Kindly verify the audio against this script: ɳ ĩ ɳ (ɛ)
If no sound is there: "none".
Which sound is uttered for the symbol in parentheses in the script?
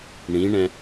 ɛ̃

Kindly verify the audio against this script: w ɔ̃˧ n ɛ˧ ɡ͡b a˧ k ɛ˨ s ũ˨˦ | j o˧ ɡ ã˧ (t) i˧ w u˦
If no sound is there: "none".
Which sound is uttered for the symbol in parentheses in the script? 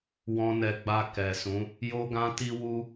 t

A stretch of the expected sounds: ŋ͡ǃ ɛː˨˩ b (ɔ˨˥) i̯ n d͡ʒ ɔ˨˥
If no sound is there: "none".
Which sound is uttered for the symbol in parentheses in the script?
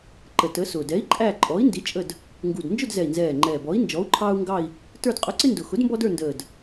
ɔ˨˥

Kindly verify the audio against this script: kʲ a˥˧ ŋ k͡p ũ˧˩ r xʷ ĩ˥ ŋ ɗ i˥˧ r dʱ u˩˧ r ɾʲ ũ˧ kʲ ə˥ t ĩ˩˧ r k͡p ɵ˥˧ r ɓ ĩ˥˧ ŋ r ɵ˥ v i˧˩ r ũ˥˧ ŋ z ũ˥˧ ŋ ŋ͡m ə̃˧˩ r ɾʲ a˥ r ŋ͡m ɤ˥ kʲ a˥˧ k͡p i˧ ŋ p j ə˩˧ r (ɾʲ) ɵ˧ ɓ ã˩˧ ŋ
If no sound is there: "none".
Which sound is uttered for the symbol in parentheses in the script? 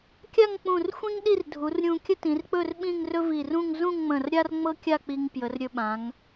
ɾʲ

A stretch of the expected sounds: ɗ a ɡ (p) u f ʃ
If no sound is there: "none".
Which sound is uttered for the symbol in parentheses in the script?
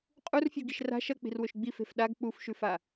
k͡p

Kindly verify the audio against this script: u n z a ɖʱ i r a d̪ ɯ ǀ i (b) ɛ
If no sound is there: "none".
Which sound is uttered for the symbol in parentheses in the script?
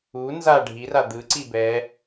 b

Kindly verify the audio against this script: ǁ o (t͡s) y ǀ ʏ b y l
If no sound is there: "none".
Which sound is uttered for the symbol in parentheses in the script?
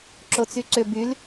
t͡s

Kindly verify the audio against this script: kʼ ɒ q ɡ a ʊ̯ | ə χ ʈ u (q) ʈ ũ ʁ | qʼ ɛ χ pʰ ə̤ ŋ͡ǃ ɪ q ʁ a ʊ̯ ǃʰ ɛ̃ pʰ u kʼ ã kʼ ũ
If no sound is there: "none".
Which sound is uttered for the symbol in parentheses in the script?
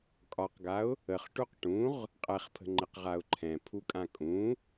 q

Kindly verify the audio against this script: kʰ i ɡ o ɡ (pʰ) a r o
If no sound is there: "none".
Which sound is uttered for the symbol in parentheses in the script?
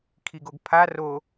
pʰ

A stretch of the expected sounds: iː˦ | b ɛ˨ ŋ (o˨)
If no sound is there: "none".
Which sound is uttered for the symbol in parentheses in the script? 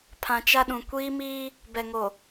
o˨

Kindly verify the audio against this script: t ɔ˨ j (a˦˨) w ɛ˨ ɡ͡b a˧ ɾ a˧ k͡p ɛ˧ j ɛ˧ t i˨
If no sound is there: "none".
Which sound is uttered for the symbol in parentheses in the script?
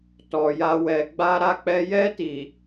a˧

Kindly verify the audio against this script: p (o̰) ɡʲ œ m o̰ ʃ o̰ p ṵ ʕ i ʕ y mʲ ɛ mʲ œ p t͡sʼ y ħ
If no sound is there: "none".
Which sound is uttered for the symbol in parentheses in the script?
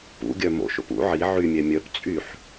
ṵ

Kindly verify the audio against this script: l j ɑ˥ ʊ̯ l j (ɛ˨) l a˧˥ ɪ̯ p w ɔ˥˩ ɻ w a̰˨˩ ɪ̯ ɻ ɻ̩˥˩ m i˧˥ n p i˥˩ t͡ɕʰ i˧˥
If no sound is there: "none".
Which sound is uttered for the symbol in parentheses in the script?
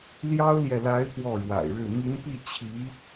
ɛ˨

